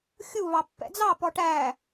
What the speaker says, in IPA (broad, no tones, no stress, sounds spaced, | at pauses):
xʲ u β ɑ pː ɛ̰ d͡z ɑ p ɔ ʈ æ